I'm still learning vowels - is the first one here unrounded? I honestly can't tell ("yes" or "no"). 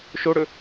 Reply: no